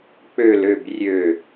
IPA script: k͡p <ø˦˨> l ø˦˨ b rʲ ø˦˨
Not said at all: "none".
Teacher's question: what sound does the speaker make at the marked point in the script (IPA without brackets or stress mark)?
ø˦˨